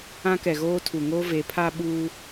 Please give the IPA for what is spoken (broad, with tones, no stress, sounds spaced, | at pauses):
ã˦ k ɛ˨ ɣ oː˦ tʰ u˨ ŋ oː˦ v e˨˦ pʰ a˦ ɓ uː˦